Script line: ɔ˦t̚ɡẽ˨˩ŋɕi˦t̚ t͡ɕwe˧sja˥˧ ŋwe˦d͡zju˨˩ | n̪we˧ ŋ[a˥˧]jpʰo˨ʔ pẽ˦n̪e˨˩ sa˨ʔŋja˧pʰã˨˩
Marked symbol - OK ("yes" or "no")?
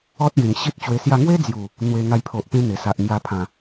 no